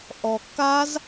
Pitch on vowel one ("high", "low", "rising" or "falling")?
low